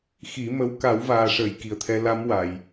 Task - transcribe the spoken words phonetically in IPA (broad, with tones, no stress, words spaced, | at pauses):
xi˨˩˦mə˧˥w ka˨˩˦wvaː˨˩ʂəː˨˩˨j ki˨˩ə̯t̪ʰɛ˧˥ la˧˥mwa˨˩˨j